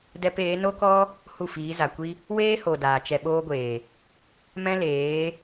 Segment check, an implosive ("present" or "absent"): present